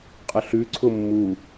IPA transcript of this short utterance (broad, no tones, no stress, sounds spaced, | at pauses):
qʼ ə ɬ ʉ ǀʰ ʊ mː u